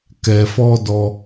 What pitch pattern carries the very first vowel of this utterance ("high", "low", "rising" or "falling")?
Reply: low